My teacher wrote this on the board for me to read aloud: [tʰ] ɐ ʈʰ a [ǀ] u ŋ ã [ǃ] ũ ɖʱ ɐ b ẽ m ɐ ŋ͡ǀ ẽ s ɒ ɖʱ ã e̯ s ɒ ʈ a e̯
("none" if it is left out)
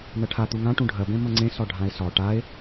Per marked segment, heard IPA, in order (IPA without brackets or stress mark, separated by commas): n̪, t̪, ʈ